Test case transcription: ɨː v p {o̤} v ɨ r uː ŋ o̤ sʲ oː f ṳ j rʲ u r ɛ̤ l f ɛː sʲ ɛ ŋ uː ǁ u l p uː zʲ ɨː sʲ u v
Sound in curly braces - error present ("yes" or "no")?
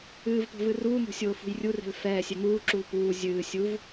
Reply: no